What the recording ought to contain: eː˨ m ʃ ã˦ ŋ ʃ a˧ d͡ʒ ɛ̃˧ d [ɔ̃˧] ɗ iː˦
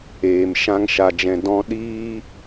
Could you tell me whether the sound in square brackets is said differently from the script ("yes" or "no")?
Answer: yes